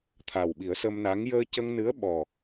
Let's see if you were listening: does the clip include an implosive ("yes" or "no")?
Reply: yes